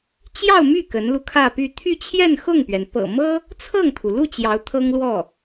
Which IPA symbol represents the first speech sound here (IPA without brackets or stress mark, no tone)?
t͡ɕ